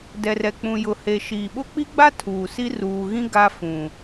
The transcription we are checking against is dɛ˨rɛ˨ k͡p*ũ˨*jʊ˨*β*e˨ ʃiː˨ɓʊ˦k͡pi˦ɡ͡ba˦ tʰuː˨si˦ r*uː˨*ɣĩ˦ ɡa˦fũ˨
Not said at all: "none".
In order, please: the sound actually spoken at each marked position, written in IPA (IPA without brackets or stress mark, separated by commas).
ũ˨, h, uː˨